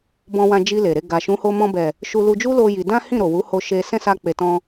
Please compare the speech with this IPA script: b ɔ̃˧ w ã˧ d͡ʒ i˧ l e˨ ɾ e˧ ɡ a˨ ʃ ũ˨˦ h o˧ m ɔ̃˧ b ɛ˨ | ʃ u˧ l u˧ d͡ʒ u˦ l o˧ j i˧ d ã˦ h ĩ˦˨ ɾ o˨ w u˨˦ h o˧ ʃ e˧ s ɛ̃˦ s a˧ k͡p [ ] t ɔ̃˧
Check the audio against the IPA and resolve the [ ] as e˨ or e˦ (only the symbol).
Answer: e˨